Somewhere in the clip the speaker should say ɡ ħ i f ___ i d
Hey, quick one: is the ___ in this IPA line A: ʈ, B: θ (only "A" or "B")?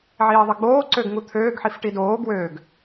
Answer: A